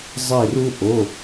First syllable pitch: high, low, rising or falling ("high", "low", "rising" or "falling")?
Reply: falling